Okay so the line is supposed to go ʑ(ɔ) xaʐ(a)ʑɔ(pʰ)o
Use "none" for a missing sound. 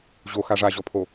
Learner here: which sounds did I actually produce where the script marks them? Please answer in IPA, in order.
o, a, pʰ

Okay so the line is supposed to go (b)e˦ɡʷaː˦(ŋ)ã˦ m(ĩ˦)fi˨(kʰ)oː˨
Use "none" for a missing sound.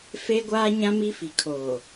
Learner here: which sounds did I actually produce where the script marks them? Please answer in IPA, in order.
f, ɲ, i˦, kʰ

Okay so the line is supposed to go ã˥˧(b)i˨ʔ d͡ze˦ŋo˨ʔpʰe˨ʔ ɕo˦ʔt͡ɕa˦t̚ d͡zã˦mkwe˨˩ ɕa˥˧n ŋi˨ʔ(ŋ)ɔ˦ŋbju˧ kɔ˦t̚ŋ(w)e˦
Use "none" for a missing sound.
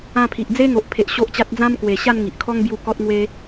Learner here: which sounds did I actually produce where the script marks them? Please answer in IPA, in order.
pʰ, kʰ, w

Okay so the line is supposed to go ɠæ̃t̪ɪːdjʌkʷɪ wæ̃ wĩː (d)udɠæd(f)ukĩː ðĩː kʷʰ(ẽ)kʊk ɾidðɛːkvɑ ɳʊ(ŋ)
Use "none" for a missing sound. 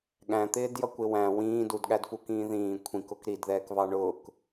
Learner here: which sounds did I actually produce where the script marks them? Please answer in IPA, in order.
d, f, ĩ, k

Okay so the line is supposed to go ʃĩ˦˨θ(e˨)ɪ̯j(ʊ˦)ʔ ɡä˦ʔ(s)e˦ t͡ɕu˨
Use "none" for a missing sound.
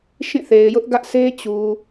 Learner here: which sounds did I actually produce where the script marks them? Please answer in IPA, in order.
e˨, ʊ˦, s

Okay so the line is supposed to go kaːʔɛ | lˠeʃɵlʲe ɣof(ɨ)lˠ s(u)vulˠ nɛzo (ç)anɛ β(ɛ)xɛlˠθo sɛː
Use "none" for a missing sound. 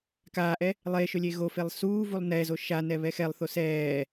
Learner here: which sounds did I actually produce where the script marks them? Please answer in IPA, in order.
e, uː, ʃ, ɛ

